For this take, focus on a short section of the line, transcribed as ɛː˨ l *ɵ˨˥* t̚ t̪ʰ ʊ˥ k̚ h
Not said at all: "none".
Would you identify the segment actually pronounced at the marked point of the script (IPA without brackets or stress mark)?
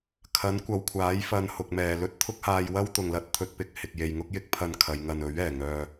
ɵ˥